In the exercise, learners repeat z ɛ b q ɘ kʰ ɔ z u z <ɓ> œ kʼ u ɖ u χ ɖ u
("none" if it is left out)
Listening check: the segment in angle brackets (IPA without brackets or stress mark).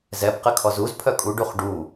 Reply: pʰ